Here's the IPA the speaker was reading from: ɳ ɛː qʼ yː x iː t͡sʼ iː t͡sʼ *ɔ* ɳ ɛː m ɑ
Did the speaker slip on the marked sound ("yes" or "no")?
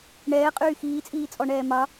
no